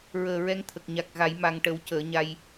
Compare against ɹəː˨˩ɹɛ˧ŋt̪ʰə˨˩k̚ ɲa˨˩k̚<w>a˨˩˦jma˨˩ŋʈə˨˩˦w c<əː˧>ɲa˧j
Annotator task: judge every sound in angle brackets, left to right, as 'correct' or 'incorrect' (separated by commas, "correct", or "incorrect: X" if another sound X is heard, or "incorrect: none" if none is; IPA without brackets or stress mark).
incorrect: ɣ, incorrect: əː˨˩˦